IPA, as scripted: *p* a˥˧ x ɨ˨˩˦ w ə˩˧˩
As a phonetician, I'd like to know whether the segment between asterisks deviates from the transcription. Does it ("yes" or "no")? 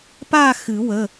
no